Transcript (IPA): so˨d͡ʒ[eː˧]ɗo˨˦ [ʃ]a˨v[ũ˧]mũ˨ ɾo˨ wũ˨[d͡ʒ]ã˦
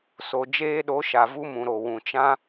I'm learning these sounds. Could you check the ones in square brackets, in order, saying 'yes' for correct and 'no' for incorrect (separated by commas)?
yes, yes, no, no